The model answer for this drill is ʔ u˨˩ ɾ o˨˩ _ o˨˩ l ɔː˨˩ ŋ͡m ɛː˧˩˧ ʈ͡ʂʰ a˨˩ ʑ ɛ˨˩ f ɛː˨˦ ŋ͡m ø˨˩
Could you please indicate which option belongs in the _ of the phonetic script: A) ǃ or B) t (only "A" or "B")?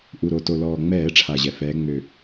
B